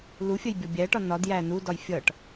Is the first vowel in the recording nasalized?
no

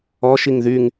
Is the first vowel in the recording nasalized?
no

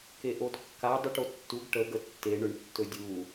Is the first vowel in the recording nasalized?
no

